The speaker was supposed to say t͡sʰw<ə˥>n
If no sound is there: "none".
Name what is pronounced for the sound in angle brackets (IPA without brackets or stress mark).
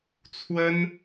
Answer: ə˥